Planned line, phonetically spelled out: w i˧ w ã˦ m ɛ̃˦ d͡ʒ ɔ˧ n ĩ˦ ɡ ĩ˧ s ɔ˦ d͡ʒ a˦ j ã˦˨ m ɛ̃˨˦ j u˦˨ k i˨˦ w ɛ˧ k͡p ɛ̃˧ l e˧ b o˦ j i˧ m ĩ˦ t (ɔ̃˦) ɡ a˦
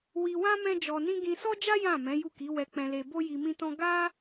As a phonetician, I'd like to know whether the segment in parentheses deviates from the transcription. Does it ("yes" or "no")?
no